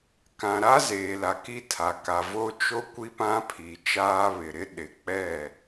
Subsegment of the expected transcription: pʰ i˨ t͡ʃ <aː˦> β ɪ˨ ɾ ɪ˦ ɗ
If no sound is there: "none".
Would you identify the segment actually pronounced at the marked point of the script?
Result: aː˦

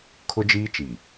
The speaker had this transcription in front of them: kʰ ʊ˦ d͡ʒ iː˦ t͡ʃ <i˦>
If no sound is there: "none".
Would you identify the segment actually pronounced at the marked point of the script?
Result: i˨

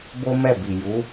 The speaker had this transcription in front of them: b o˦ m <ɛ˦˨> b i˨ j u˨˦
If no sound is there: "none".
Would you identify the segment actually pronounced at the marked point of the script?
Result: ɛ˦˨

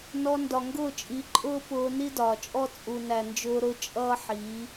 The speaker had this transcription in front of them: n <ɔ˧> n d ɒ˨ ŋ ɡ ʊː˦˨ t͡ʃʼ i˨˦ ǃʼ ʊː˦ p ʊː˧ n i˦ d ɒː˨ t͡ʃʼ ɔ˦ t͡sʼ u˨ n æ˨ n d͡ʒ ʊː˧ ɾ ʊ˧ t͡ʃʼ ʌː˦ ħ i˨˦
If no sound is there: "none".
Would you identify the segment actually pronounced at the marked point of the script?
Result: ɔ˧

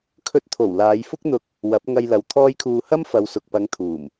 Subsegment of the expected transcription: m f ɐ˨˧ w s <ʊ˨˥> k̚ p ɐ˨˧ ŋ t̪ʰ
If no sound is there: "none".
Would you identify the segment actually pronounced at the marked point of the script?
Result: ʊ˨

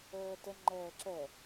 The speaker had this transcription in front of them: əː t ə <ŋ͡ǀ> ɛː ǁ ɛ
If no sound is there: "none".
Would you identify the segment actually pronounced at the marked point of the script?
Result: ŋ͡ǃ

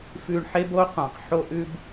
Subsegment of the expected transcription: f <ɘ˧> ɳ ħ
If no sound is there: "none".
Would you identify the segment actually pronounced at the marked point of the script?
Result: ʉ˧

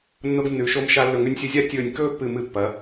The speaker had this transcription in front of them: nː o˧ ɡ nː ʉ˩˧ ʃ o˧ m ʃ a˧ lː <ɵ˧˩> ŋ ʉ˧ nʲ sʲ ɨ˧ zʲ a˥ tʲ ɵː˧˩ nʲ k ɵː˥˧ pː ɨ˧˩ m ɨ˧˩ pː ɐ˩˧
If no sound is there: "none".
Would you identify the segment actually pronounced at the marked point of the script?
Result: ɵ˧˩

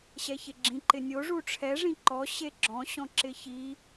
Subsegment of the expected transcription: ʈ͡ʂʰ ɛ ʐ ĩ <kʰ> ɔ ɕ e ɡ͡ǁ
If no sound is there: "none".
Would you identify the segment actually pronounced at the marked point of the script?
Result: ǃ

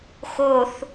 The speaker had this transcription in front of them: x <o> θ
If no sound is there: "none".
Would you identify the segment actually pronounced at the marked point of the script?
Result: o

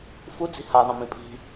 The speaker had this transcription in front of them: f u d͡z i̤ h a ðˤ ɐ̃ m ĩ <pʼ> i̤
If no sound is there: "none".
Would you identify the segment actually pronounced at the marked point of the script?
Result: pʼ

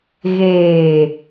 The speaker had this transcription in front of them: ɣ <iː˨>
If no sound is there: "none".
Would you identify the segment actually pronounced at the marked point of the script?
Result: eː˨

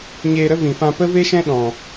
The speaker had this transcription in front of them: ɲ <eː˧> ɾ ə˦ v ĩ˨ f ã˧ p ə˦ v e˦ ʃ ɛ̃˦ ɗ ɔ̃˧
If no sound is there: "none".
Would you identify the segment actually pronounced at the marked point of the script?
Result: eː˧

